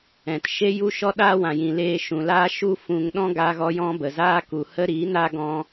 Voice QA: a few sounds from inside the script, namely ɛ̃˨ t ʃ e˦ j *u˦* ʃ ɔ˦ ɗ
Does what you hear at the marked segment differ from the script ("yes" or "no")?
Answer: no